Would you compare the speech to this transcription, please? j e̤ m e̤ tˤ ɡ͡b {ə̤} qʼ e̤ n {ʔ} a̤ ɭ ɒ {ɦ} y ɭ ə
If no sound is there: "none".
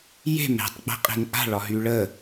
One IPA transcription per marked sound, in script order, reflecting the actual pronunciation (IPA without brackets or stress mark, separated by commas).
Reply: ə̤, ʔ, ɦ